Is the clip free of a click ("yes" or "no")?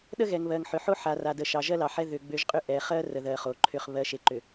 no